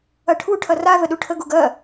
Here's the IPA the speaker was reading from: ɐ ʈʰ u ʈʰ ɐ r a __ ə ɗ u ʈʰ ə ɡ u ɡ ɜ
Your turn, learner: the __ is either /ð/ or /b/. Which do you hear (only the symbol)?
ð